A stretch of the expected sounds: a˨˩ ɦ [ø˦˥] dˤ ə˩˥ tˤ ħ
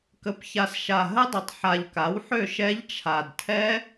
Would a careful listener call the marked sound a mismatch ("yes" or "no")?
yes